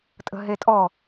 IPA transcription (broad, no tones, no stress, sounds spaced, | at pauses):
tʼ ə̤ ɦ e tʼ ɔ